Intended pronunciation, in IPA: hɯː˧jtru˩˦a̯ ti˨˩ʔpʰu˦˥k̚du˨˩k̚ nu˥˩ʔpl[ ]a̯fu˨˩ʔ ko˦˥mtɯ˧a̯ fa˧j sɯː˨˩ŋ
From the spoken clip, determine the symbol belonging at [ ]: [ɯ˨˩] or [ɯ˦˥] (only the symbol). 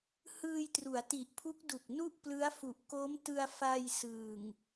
ɯ˦˥